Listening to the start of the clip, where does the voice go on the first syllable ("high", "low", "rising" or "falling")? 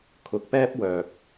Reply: low